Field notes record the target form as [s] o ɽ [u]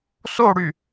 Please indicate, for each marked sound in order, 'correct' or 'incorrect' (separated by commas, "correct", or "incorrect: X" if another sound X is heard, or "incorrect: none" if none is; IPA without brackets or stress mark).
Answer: correct, incorrect: y